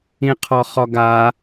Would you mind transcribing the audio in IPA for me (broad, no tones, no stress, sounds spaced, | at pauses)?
ĩ qʰ ɔ χ ɔ ɡ a